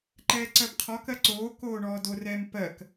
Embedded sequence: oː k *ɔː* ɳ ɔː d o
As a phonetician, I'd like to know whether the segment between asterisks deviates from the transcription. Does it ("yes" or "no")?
yes